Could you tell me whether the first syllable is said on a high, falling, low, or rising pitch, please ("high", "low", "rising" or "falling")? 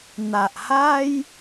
low